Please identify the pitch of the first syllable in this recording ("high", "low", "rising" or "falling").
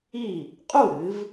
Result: falling